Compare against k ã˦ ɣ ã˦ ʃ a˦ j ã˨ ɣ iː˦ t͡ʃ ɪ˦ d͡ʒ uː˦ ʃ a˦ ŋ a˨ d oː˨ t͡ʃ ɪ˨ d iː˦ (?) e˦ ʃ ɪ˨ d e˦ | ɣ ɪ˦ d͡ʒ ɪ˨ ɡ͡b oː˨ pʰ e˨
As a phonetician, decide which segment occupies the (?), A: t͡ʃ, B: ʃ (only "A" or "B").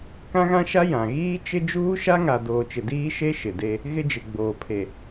B